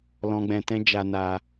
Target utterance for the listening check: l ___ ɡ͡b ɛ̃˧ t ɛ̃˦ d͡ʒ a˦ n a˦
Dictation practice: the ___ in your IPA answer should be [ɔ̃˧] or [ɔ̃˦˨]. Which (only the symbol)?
ɔ̃˧